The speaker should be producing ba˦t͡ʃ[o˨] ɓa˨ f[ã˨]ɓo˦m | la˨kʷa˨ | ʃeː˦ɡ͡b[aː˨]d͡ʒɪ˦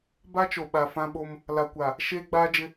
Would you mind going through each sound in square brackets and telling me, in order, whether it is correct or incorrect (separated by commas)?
correct, incorrect, incorrect